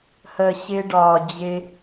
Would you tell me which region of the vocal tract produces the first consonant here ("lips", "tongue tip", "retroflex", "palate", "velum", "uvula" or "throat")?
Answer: throat